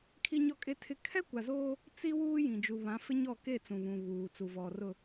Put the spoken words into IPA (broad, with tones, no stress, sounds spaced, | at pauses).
kʰ i˦ ɲ ɔ˦ kʼ e˦ tʰ ɪ˦ kʰ ɛ˦ kʷ a˨ z oː˦ | t͡s i˦ w uː˦ j ĩ˨ d͡ʒ u˨ β ã˨˦ f ɪ˦ ɲ ɔ˦˨ k e˦˨ t͡s ũ˨ β ũ˨ β uː˨ t͡s u˨ v ɔ˨ r ʊ˨